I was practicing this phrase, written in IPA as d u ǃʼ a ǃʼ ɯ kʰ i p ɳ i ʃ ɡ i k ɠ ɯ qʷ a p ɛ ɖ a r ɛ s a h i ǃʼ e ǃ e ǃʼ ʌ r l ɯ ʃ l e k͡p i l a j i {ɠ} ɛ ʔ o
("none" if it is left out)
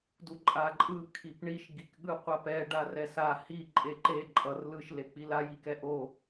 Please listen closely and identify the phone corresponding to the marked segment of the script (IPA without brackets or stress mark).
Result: k